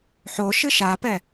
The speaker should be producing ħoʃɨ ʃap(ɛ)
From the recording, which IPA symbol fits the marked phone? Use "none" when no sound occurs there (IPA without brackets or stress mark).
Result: ɛ